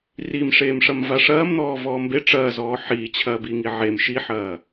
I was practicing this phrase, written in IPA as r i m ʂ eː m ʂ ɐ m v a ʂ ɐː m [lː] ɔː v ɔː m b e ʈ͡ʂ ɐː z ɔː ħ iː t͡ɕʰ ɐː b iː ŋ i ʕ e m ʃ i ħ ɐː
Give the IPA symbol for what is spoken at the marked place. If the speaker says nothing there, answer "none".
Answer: n̪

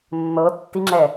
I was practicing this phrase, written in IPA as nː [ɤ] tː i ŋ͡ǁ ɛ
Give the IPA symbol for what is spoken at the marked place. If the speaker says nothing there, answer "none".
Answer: ɤ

